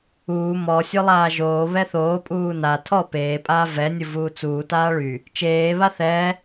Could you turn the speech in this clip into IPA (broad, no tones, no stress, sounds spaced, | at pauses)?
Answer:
uː m ɔ sʲ o lˠ aː ʒ oː β ɛ θ oː pʼ uː n a tʰ ɔ p eː pʼ aː v ɛ nʲ u v uː t͡s uː t aː ɭ y | t͡ʃ eː β a θ ɛ